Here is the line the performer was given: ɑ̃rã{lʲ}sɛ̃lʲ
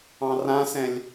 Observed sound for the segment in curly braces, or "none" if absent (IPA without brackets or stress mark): none